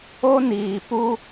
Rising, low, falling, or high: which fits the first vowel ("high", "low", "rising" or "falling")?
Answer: high